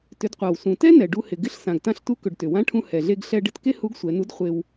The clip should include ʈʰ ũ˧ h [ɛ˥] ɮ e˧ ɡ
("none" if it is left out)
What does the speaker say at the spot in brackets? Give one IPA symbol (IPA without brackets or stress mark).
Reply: ɛ˩